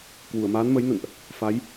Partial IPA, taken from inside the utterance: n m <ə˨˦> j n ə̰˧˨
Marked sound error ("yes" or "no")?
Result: no